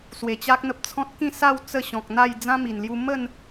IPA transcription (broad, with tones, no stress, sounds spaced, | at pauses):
s w e˨˩ t͡ɕ a˦ k̚ n̪ ə˦ p̚ t͡sʰ ɔ̃˦ t̚ k ĩ˥˧ s a˥˧ w t͡s ə˥˧ ɕ ɔ̃˨ k̚ n̪ a˥˧ j d͡z ã˦ m i˨˩ n l j u˧ m ə˥˧ n